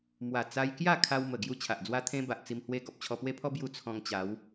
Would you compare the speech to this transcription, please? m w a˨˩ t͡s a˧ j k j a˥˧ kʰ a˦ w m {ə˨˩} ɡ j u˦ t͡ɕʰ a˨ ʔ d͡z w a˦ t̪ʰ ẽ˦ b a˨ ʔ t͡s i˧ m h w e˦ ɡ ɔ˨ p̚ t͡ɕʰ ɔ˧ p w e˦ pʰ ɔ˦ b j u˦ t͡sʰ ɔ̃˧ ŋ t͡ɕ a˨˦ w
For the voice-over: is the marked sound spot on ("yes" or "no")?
yes